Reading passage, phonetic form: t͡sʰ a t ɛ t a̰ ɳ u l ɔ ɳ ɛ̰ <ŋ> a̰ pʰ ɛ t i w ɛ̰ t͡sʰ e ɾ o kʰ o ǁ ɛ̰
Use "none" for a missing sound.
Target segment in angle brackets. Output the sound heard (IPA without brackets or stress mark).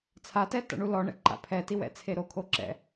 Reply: ǃ